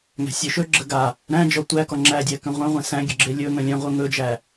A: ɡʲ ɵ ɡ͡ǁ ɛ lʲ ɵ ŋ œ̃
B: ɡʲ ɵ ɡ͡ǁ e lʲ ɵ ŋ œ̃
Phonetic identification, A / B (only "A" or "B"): B